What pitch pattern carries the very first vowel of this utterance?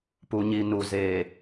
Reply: low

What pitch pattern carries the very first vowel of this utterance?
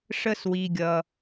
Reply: high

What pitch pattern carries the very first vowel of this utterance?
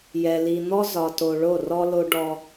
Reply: low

